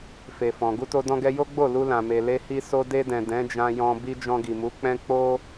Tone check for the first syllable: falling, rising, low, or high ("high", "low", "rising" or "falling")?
low